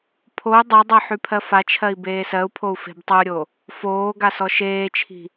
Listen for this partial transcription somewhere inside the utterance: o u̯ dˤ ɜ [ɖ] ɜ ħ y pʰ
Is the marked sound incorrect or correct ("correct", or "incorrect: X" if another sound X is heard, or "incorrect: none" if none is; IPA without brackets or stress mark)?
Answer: incorrect: dˤ